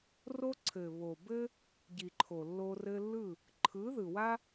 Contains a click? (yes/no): yes